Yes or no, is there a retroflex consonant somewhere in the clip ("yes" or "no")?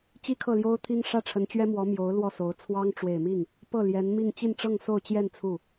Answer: yes